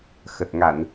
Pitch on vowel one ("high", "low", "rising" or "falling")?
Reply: low